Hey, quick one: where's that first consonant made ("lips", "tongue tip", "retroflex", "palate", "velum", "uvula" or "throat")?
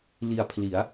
tongue tip